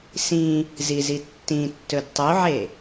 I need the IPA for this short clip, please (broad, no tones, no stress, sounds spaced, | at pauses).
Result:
s ĩ | z i z i tː ĩ tː ɵ d tˤ u ʕ e